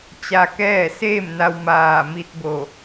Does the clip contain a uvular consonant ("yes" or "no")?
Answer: no